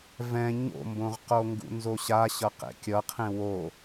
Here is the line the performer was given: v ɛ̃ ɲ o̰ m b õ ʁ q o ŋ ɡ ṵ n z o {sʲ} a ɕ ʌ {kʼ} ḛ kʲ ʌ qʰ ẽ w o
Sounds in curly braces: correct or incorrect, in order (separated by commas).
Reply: incorrect, incorrect